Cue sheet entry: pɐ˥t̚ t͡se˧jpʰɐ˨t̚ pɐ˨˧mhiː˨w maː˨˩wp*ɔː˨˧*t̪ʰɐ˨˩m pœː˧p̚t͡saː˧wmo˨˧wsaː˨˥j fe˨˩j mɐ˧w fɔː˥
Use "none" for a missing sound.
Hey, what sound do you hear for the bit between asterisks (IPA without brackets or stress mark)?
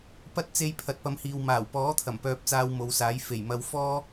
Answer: ɔː˨˥